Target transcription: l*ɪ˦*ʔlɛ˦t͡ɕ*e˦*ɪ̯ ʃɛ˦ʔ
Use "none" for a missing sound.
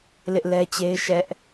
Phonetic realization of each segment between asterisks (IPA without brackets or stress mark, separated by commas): ɪ˦, e˦